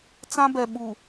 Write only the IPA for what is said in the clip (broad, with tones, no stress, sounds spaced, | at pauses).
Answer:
t͡s ã˦ b ɛ˨ ɓ u˨